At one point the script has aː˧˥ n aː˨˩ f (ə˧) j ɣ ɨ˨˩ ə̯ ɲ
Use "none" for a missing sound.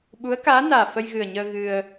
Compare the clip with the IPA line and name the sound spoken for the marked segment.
ə˧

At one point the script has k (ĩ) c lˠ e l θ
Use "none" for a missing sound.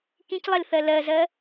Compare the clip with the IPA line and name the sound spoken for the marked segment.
ĩ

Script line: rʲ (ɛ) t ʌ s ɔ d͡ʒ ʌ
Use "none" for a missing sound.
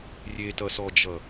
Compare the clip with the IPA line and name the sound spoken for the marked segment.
e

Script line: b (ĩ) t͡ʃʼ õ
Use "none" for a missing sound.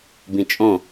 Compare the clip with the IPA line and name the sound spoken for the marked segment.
ĩ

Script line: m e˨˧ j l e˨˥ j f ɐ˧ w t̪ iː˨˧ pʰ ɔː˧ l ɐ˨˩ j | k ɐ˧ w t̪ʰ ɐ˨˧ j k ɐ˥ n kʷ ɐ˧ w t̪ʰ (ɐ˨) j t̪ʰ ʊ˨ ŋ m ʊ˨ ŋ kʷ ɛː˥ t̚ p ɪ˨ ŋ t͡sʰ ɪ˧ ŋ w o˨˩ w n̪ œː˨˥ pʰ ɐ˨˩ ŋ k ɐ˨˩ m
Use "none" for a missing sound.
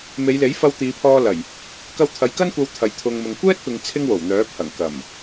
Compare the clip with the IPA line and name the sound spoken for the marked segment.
ɐ˨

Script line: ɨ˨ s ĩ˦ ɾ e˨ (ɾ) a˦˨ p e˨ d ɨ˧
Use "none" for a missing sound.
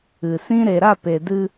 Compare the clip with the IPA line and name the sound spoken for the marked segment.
ɾ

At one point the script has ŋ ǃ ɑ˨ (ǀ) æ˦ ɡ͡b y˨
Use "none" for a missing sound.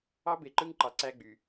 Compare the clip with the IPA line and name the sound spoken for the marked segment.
ǀ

